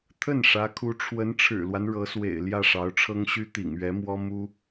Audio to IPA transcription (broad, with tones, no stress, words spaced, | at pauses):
t̪ʰə˥˩n ʂä˧˥kʰu˧˥ ʈ͡ʂʰwə˧˥nʈ͡ʂʰɻ̩˨˩lwa˦n ɻɤ˧˥swḛ˨˩ɪ̯ ljä˥˩ʂɑ˧˥ʊ̯ʈ͡ʂʰɤ˥ŋɕy˥ t̪ḭ˨˩ŋɥɛ˧˥mwɔ˥ mu˥